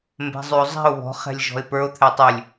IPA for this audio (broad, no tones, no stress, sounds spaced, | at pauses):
m b ɛ̤ zˤ ʉ o̯ zˤ ɛ̤ o̯ β ɔ̤ χ ɛ̤ lʲ ʒ ɔ̤ e̯ p ə˞ o̯ t̪ʰ ɛ tˤ ʉ lʲ